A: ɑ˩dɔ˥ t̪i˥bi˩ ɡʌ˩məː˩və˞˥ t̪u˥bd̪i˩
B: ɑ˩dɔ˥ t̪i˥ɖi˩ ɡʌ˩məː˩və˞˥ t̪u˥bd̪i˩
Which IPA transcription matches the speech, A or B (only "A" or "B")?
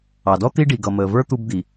B